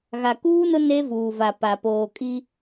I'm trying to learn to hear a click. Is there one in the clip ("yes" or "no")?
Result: no